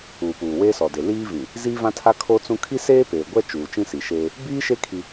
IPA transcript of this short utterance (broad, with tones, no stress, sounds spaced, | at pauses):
uː˨ p uː˨ w eː˦ s ɔ˨ d e˨ l iː˦ v ĩ˨ | z iː˦ v ã˦ tʰ a˦ kʰ o˦ t͡s ũ˦ kʰ i˦ s eː˦ p eː˨ ɡʷ ɛ˦ t͡ʃ uː˨ t͡ʃ ĩ˦ s i˨ ʃ eː˦ | b iː˦ ʃ e˦ kʰ i˦